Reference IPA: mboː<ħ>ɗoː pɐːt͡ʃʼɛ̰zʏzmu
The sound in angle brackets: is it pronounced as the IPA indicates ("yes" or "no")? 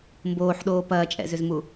yes